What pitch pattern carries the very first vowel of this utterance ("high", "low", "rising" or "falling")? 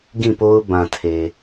falling